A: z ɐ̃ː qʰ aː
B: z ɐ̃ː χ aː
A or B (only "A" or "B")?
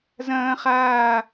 B